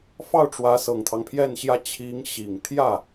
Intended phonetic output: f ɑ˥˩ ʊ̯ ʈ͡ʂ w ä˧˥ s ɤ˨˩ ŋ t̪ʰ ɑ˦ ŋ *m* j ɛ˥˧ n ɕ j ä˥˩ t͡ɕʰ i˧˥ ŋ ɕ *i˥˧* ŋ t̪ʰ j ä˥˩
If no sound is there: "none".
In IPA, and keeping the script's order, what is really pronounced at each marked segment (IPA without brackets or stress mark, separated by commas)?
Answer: pʰ, i˨˩